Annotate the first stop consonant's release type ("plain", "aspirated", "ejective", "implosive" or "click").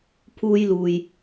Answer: aspirated